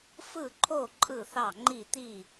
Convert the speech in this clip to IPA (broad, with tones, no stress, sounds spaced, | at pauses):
f ɯ˥˨ ǃʰ o˥˨ ǃʼ ɯ˥˨ θ ɑ˥˨ ŋ͡ǃ i˥˨ t̪ i˥˨